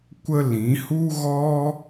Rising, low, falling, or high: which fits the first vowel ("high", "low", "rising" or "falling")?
high